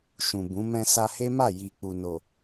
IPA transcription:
ʃ ũ˨ b ũ˨˦ m ɛ̃˧ s a˧ h e˦ m a˦˨ j i˨ k͡p u˨ n o˨

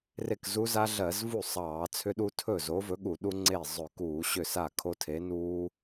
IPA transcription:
r e˥˩ k z u˦˥ z a˦˥ ɮ ɜ˧˩˧ z v u˥˩ sˤ ɑː˧˩˧ t͡sʰ ʏ˦˥ ɗ u˦˥ tʰ ɵ˥˩ z o˨˥ v ɵ˨˥ ɠ u˧˩˧ ɗ u˦˥ ŋ͡ǀ e˥˩ zˤ ɵ˧˩˧ k uː˧˩˧ ɕ ʏ˥˩ s a˥˩ kʰ o˦˥ tʰ e˨˥ n uː˦˥

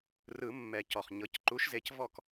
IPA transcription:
r ɯ˨˩˦ mː ɛ˨˩˦ c ɔ˩ χ ɲ ɤ˩˧˩ c ǃ u˨˦ ʃ z e˨˦ c v ɔ˦˨ k

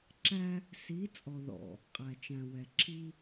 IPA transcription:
ǁ æ˦ | s i˨˦ t͡sʼ ɔ˨ ð ɔ̰˨ | qʼ æ˨ t͡ʃ æ̃˨ w ɛ˨ ǁʰ i˦

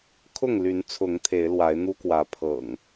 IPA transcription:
kʰ ʊ˥˨ ŋ l y˨˦ n t͡sʰ ʊ˨˦ ŋ t̪ʰ e˨˦ ɪ̯ l w a˨˦ ɪ̯ n̪ u˦ k w ä˨˦ pʰ ɤ̰˨˩ ŋ

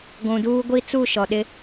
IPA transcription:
ɡʷ ũ˨ d uː˦ ɡʷ i˦ t͡s u˦˨ ʃ ɔ˨ ɗ ɪ˦

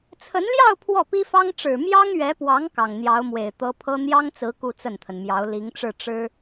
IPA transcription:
t͡sʰ ə˧˥ n l j ɑ˥˧ ʊ̯ pʰ w ɔ˥˩ p i˥ f ɑ˥ ŋ ʈ͡ʂ ɻ̩˨˩ m j ɑ˥ ŋ ɥ ɛ˧˥ p w ɑ˧˥ ŋ k ɑ˨˩ ŋ n̪ j ɑ˧˥ ʊ̯ m w e˨˩ ɪ̯ t̪ ɤ˧˥ pʰ ɤ˥ n̪ j ɑ˥ ŋ t͡s ɹ̩˧˥ k u˥˧ t͡s ə˥˩ n t̪ʰ ə˩ n m j ɑ˧˥ ʊ̯ l i˧˥ ŋ ʈ͡ʂ ɻ̩˥˩ ʈ͡ʂ ɻ̩˥

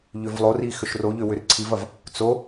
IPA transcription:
ʎ ʏ v lˠ o r i x ʏ ʃ r o ʎ ʏ w ʏ r ǀʰ i v ɐ v | t͡s o

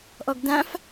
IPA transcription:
ʔ ɔ ɡ d ã f

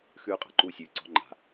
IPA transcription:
x ʉː˦ qʼ a̤˨ ǃ uː˦ sʲ ʉː˨ ǀ ɔ̤˦ ŋ͡ǃ a̤˨

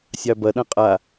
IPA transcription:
sʲ ɑ b ɐ ɗ ɐ̃ qʼ a

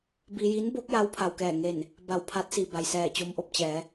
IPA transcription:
b i˧ j i˧˥ n b o˧˥ k̚ j a˧˥ w pʰ a˩ w k ɛː˧˩ ŋ e˧˩ n | b a˧˩ w pʰ a˧˥ t̚ s i˩ b a˩ j s ɛː˧˩ t͡ɕ o˧ m ʔ o˥˨ p̚ t͡ɕ ɛː˩˧

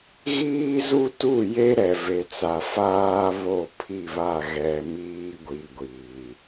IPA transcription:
ɣ iː˦ z u˦ t u˦˨ j e˦ ɾ ɛ˨ v e˨ t͡s a˨ f aː˦ β o˦˨ pʰ i˦˨ β a˦˨ ɣ ɛ˨ m iː˦ ɡʷ i˨ ɡʷ iː˨

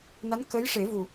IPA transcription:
n a˧˥ n k əː˧˥ j ʂ e˨˩˦ v u˨˩

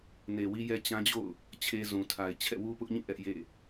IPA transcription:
n e˨ w i˦ j ɛ˦ t͡ɕ ã˦ d͡ʑ o̰˦˨ ʊ̯ | t͡ɕʰ e˦ z ũ˨ tʰ a˨ ɪ̯ t͡ɕʰ ɛ̰˦˨ w u˦ p ʊ˦ ʔ ɲ ĩ˦˨ ʔ ɛ˦ ʔ j ḛ˦˨

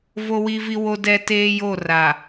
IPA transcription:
v o˦ w i˦ v i˦ w o˦ d ɛ˦ t eː˦ j o˦˨ r a˨

